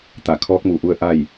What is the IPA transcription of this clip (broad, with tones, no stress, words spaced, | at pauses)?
t̪a˧˩kʰɔː˧˥k̚mu˧˩ʔu˧ə̯ ʔa˥˨j